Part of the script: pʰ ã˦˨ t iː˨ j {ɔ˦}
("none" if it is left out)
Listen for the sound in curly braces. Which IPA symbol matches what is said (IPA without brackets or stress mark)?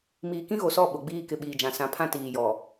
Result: ɔ˨